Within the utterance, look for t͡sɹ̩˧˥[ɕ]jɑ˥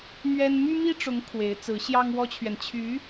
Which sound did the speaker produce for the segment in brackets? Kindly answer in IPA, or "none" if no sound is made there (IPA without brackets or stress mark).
ɕ